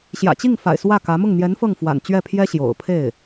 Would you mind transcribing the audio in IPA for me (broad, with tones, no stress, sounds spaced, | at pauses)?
ɕ j ä̰˨˩ t͡ɕ i˥˩ ŋ f a̰˨˩ ɪ̯ s w ä˥˩ k ä˧˥ m ʊ˥˩ ŋ n̪ j ɛ˧˥ n f ɤ˥˩ ŋ f w a̰˨˩ n t͡ɕ ɥ ɛ˥˩ pʰ j ɛ˥ ɕ j o̰˨˩ ʊ̯ pʰ e˥˩ ɪ̯